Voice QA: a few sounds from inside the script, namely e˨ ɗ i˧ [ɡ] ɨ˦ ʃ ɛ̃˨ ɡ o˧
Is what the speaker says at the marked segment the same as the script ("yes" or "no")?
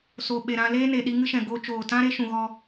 no